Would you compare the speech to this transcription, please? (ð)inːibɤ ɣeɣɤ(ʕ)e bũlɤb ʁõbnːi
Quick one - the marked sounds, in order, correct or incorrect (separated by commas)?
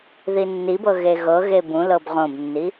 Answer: correct, incorrect